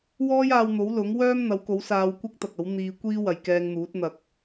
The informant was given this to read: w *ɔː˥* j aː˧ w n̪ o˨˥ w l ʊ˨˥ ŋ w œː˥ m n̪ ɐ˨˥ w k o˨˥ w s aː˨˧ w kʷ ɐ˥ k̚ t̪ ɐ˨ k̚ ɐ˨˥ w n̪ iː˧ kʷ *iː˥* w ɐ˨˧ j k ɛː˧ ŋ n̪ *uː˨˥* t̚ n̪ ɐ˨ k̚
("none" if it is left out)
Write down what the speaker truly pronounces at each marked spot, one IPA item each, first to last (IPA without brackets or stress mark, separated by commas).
ɔː˥, iː˥, uː˨˥